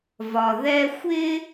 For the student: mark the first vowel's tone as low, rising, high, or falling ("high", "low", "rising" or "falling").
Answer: low